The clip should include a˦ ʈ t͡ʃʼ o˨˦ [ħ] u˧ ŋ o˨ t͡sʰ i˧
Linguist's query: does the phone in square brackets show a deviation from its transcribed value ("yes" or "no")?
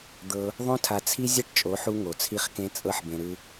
no